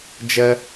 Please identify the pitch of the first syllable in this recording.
high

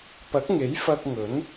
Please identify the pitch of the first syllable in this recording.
rising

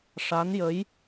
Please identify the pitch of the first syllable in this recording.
rising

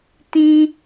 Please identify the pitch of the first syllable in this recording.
high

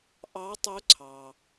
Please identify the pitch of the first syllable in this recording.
rising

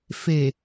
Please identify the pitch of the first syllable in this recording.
low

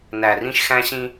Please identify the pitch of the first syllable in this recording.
low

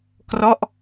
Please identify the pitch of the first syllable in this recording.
falling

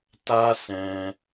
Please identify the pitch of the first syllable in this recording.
high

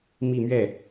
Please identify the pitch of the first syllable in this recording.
falling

